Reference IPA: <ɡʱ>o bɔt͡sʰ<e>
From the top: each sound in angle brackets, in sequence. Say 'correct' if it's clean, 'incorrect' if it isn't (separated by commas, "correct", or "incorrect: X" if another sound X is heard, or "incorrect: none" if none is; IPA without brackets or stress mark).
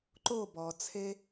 incorrect: ǃ, correct